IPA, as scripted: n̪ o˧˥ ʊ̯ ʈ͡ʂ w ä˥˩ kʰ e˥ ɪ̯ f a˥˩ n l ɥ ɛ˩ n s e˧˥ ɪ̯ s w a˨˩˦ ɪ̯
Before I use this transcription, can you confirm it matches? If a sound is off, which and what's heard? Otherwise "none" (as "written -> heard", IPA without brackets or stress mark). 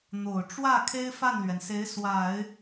o˧˥ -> o˨˩